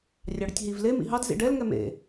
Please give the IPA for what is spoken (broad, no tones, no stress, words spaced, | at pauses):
rʲɑɽətʲɦiv le mḭɦɑd zḭɖɛl ŋɛmḛ